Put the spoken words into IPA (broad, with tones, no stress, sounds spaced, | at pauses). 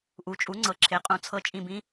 ʔ u˩˥ t͡ʃʼ u˩˥ ŋ͡ǀ ɤ˩˥ ǁʰ e˩˥ qʼ ũ˩˥ t͡sʰ ɤ˧˥ t͡ʃʼ ĩ˦˨ b ĩ˥